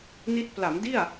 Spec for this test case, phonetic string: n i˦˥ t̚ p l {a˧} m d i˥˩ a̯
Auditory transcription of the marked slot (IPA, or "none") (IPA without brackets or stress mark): a˩˦